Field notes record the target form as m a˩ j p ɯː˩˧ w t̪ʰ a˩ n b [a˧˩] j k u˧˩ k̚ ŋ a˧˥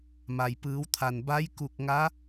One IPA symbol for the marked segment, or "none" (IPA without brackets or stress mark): a˧˥